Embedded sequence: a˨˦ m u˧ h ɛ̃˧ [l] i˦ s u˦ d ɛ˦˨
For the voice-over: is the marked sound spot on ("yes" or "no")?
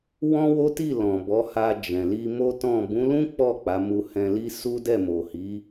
yes